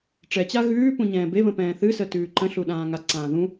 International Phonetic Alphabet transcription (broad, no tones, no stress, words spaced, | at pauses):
ʈ͡ʂɛt͡ɕa ɣʉː pũɲɛ̃ːbeβə̃ pɛ̃ːθɨsə tʉːǃə̃ɬu ɗãːŋaǀãː ðũ